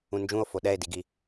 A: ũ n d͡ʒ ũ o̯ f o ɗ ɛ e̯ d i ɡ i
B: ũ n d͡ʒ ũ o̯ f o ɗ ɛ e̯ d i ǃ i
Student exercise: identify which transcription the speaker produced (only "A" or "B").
A